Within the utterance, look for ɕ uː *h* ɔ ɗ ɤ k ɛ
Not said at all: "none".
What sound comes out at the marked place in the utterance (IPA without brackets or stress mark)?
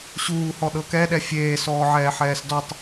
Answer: h